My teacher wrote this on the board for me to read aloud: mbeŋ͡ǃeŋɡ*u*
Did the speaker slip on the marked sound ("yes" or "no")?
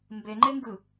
yes